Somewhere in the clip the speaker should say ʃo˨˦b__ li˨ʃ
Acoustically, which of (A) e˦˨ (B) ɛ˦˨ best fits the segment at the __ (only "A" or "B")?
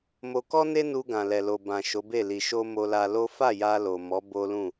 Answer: A